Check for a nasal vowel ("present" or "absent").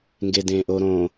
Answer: present